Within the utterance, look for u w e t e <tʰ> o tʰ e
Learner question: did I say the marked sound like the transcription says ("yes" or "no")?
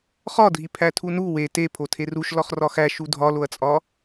no